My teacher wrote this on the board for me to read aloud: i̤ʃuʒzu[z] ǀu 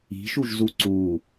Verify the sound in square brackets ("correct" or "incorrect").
incorrect